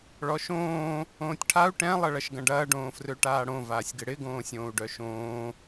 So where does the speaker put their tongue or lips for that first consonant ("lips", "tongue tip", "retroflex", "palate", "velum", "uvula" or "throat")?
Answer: retroflex